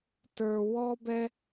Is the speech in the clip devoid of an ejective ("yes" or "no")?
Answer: yes